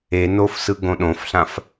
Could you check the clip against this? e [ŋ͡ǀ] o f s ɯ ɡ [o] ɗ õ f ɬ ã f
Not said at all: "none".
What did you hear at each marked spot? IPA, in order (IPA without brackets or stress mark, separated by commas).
n, õ